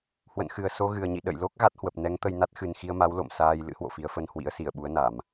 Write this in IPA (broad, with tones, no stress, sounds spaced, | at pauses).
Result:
h w ə̰˧˨ n x ɨ˨˩ ə̯ s o˧ ɣ ɨ˨˩ ə̯ ɲ ḭ˧˨ ɗ ə̰˧˨ j l o˦˥ k̚ ɣ a˦˥ t̚ h w ə˨˩ p̚ n ɛ˨˦ ŋ t̪ ə˧ j n a˦˥ t̚ x ɨ˨˩ n x i˧ ə̯ m a˨˦ w l o̰˧˨ m s aː˧ j l ɨ̰˧˥ h w o̰˧˨ f i˨˦ ə̯ f ə˧ n h w ḭ˧˥ ə̯ s i˧˩ ə̯ ɓ u˨˦ ə̯ n a˧˩˨ m